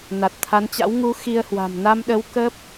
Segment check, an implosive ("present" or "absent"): present